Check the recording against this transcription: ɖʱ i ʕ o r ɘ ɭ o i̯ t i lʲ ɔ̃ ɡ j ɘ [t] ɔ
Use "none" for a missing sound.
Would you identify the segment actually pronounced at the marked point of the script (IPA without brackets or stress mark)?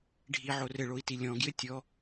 tʲ